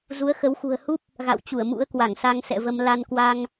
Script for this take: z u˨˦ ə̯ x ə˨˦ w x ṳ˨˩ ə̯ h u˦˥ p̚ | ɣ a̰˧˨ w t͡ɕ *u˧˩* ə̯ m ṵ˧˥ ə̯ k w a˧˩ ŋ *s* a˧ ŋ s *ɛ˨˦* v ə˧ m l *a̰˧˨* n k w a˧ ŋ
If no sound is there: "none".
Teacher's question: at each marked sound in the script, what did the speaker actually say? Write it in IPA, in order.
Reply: u˧˩, s, ɛ̰˧˨, a˧

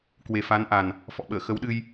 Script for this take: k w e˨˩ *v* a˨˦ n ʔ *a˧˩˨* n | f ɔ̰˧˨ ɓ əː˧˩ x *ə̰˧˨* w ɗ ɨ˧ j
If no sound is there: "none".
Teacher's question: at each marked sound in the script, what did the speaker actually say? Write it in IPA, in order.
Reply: f, a˨˩, ə˨˦

